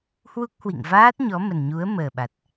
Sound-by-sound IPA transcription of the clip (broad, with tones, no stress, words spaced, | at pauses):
hwu˦˥k̚hwḭ˧˨ŋ vaː˦˥t̚ ɲɔ˨˦mə˨˩nɲu˨˦ə̯ məː˨˩ɓa˨˩t̚